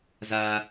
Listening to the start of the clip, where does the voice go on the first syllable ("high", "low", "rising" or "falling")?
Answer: high